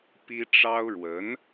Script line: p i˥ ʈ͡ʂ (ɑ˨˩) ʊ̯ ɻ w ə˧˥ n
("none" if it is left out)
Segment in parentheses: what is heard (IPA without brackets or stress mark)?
ɑ˥